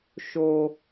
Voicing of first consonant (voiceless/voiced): voiceless